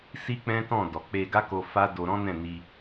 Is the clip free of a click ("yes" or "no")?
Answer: yes